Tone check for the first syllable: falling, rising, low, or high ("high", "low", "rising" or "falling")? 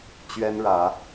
high